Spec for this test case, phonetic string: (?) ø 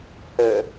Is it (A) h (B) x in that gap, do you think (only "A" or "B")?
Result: A